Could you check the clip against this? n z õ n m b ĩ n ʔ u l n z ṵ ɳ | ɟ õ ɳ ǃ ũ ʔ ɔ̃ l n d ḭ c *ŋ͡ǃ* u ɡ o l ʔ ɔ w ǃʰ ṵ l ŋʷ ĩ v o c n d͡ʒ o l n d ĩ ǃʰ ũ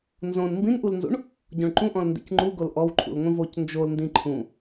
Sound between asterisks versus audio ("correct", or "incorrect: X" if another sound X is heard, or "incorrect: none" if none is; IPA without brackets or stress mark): correct